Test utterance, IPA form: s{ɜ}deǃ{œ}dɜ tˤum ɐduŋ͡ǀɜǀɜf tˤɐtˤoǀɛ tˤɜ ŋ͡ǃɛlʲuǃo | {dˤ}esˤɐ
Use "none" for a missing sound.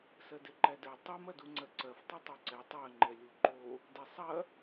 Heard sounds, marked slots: ɜ, æ, d

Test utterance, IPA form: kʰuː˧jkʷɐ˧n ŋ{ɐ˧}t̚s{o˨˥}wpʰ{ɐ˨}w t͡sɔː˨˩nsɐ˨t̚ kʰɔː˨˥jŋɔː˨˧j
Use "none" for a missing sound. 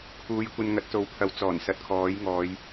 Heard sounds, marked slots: ɐ˨˥, o˨˥, ɐ˨˥

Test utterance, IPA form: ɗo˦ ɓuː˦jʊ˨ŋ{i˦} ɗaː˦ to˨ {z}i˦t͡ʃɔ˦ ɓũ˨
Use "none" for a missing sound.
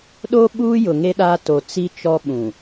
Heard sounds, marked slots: e˦, t͡s

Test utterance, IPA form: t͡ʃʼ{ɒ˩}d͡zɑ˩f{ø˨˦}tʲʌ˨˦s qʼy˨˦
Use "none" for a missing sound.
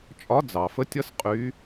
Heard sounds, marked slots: ɒ˨˦, ə˨˦

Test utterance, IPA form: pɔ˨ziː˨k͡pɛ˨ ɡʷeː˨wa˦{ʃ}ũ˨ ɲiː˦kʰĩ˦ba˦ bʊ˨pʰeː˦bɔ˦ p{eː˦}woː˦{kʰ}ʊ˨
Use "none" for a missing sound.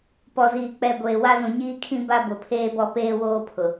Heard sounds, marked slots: z, eː˦, pʰ

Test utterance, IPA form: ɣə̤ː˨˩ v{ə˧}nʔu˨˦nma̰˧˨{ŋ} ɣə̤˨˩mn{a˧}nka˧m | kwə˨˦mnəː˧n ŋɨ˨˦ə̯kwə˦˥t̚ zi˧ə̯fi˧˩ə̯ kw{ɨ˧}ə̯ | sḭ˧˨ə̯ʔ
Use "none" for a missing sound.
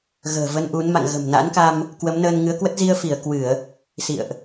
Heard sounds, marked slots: ə˧, ŋ, a̰˧˥, ɨ˧˩˨

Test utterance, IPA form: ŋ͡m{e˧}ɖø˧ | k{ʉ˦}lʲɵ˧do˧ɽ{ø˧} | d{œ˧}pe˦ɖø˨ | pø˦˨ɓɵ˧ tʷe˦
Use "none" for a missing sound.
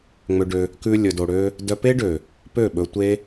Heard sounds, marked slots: ø˧, ʉ˦, ø˦, œ˧

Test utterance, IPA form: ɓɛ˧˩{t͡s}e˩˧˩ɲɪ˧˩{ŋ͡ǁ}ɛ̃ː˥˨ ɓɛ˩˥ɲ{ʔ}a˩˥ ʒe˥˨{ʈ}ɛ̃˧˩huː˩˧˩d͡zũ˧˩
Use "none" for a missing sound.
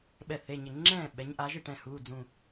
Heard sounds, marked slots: θ, ŋ͡ǁ, ʔ, ʈ

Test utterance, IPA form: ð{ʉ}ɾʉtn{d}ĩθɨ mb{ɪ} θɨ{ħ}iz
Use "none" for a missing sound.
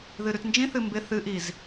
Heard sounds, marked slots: ɨ, d͡ʒ, ɪ, ʔ

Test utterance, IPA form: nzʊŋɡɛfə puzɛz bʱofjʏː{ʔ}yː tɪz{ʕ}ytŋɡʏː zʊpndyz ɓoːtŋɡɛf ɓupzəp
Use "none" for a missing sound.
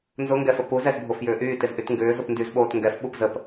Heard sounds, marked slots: ʔ, ʔ

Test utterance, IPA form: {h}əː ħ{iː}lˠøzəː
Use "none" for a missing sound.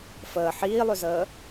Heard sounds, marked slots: f, iː

